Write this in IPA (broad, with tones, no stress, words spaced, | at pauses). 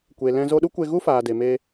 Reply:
kʷe˨lɛ̃˧ zo˧ɗu˦kʷe˧ɣu˦ faː˨de˨me˧